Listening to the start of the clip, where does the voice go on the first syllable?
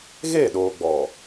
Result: falling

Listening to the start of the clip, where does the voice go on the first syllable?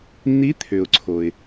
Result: rising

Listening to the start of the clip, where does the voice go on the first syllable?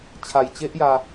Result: low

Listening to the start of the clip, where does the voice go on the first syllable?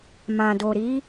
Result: low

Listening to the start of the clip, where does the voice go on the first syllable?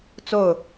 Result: falling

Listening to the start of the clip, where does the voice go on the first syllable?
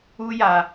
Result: high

